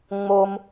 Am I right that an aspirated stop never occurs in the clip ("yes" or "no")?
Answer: yes